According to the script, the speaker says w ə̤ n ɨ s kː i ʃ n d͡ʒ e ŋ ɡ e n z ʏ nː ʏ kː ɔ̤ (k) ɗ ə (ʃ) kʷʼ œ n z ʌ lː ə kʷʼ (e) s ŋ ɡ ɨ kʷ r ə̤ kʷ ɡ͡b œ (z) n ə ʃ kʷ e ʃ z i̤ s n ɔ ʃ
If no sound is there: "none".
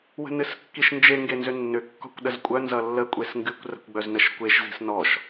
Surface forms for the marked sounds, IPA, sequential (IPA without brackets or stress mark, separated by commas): kʷ, z, e, z